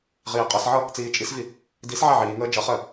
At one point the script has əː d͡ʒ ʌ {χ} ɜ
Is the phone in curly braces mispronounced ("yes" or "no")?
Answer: no